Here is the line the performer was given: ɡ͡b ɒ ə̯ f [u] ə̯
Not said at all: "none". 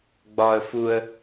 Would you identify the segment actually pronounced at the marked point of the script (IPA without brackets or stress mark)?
u